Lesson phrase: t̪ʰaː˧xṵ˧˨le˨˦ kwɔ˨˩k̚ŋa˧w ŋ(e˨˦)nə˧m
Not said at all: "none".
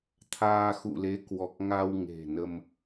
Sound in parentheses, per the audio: e̤˨˩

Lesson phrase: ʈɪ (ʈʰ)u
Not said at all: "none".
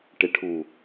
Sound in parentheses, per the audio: ʈʰ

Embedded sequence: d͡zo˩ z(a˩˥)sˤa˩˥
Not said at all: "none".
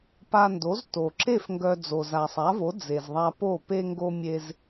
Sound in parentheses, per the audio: a˩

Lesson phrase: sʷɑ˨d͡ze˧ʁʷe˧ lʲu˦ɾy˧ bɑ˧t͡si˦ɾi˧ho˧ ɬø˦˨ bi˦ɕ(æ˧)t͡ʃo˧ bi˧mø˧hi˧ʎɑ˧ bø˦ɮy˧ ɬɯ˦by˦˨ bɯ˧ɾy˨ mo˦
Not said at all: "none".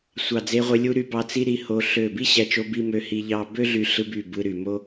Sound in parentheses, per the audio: æ˧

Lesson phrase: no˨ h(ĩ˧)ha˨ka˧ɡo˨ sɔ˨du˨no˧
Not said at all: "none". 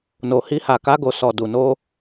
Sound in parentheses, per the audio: i˧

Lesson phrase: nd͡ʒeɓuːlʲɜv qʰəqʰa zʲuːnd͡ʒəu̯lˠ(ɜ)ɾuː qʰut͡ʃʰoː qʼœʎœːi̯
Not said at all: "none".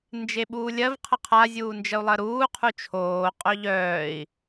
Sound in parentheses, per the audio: ɜ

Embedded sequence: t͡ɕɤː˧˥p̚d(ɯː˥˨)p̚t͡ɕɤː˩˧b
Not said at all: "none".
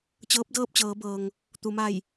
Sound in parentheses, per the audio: ɤː˥˨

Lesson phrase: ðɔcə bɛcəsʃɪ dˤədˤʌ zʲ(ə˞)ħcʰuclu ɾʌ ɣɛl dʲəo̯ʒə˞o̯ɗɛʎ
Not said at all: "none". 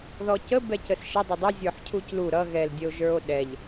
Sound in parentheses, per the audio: ə˞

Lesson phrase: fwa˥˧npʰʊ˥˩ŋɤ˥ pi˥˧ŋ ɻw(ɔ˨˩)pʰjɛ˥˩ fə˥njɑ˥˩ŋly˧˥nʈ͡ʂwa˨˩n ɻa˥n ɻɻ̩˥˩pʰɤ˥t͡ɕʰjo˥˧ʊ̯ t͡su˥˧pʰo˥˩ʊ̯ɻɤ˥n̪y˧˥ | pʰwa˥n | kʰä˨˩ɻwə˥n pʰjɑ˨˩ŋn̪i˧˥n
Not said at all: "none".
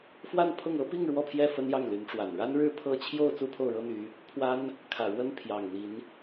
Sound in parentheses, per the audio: ɔ˥˧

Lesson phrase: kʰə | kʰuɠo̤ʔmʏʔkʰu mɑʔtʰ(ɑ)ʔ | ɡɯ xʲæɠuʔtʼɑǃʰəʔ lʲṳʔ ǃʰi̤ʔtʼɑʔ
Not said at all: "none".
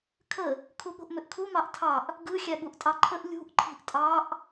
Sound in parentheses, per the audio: ɑ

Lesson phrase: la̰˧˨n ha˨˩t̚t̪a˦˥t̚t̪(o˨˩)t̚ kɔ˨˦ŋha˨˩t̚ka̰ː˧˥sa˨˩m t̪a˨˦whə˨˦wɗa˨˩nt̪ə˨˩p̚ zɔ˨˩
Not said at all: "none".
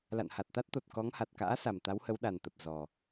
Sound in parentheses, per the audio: o˨˩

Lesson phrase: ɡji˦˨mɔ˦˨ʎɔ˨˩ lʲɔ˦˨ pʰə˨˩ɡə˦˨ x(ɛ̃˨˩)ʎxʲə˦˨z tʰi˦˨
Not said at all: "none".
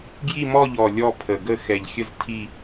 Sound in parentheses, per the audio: ɛ˨˩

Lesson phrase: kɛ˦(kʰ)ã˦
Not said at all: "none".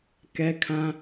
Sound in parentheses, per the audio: kʰ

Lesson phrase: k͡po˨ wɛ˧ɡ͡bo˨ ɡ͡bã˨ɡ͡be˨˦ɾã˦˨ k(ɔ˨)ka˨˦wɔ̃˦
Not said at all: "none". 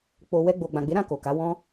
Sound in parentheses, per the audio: o˨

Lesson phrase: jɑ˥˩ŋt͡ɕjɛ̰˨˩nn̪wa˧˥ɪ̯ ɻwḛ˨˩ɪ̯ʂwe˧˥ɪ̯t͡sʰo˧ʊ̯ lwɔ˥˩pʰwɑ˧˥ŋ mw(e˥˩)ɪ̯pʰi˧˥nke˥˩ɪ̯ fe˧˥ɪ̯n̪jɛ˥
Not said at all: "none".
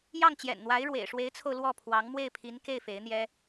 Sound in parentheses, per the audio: e˥˩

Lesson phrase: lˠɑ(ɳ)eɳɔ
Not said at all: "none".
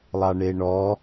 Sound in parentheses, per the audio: ɳ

